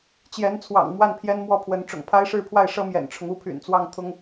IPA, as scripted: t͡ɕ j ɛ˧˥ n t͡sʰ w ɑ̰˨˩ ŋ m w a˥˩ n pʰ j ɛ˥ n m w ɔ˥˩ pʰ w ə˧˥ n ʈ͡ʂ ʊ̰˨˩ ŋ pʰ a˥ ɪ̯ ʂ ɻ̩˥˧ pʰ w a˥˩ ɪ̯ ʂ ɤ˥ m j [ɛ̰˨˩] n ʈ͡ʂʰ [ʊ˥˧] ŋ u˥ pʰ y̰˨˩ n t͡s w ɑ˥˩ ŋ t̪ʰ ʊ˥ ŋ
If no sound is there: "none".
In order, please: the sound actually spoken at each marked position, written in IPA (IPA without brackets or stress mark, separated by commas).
ɛ̰˨˩, ʊ˦